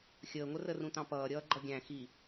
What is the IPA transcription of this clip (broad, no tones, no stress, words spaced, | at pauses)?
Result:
xʲəːŋʷə rərũtɑ̃pʌː ɾʲʌːɡ͡ǃʌɡʲæ̃ xi